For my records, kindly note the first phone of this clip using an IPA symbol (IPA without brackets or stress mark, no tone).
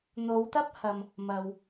n̪